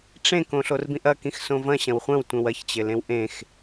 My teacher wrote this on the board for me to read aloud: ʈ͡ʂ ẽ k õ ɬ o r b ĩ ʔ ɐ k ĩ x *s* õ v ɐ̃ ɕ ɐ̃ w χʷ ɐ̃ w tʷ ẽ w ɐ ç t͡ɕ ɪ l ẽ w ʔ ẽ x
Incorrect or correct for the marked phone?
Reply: correct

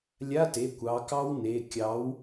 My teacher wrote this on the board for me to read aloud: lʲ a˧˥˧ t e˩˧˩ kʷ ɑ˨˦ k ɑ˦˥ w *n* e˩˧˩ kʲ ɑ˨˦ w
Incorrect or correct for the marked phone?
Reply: correct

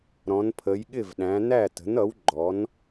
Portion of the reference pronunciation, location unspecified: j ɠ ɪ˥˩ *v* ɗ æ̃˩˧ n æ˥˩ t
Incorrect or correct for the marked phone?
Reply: correct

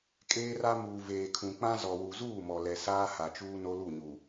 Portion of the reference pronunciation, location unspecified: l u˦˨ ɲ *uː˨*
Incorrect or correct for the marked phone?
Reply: incorrect: u˨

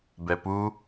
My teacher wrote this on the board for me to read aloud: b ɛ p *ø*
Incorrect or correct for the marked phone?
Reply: incorrect: u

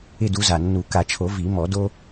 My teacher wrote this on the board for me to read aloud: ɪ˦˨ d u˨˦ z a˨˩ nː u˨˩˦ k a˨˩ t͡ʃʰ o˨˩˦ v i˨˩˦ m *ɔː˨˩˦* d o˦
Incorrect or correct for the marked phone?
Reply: incorrect: ɔ˨˩˦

